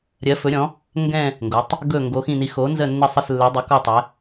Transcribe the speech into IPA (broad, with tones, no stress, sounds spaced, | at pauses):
ɾʲ ɜ˩˧ f ɵ˩˧ ɾʲ ɔ̃˩˧ | ŋ ɡ ɛ̃˨˩ | ŋ ɡ o˩˧ tˤ | ɡ ɵ˨˩ ŋ ɡ o˩˧ x ĩ˨˩ n i˩˧ x o˩˧ n z ə˨˩ nː ə˨˩ sˤ ɪ˨˩ s lː ɵ˩˧ dˤ ɪ˩˧ k ɔ˨˩ tˤ ɛ˩˧